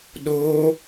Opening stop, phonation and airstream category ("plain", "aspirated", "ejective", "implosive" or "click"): implosive